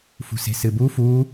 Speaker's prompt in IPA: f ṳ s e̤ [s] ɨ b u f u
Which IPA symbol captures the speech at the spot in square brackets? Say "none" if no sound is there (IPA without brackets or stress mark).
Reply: s